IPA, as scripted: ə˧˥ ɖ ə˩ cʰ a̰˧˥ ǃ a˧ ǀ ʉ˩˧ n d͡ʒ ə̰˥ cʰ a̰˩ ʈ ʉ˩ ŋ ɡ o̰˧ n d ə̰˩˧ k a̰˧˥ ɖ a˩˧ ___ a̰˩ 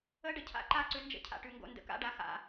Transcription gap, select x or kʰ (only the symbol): x